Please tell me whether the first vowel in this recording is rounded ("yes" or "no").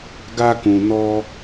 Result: no